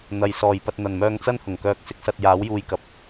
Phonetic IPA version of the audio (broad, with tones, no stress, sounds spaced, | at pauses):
n̪ ɐ˨ j s ɔː˨˩ j p ɐ˧ t̚ n̪ ɐ˨˩ n m œː˧ ŋ t͡s ɐ˥ n h ʊ˨˩ ŋ k œː˧ k̚ s ɪ˥ k̚ s ɐ˧ t̚ j aː˨˥ w j uː˧ j k ɐ˨ p̚